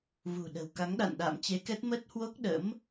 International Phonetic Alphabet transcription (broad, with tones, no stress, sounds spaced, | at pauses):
v ṳ˨˩ ɗ ə̤˨˩ w k a˨˦ ŋ ɗ a̰˧˨ n ɗ a̰ː˧˨ m t͡ɕ e˨˦ k ɛ˦˥ t̚ m ə˦˥ t̚ h w o˦˥ k̚ ɗ ə̰˧˥ m